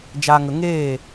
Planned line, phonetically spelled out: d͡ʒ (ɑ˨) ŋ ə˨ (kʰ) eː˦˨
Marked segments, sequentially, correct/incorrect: incorrect: a˨, incorrect: ŋ

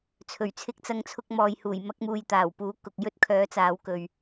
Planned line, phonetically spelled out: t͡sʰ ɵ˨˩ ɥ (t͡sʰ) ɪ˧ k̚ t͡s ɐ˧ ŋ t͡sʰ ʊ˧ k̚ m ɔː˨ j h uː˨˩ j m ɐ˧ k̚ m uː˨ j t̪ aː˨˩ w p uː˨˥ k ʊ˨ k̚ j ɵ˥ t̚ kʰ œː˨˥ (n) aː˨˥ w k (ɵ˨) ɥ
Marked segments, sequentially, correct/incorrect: correct, incorrect: t͡s, correct

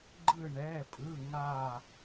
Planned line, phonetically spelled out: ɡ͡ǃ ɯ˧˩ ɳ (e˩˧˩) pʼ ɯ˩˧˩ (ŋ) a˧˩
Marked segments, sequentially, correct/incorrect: incorrect: ɛ˩˧˩, correct

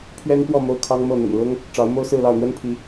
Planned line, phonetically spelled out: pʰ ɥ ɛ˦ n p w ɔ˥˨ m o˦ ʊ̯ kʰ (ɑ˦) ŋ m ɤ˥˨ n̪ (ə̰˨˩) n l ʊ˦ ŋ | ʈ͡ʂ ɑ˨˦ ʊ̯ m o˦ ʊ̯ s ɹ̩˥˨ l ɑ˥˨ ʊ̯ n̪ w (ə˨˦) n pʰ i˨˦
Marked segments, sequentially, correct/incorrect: correct, correct, incorrect: ə˦

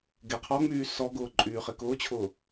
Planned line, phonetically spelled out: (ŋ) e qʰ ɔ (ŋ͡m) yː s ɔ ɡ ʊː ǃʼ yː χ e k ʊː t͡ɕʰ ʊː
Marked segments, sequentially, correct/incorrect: incorrect: ɡ, correct

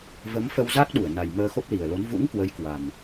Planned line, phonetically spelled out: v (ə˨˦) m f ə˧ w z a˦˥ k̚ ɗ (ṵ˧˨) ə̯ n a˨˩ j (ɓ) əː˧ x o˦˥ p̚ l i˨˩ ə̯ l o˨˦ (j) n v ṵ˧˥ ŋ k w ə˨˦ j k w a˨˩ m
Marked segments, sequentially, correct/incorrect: correct, incorrect: u˧˩, incorrect: m, incorrect: none

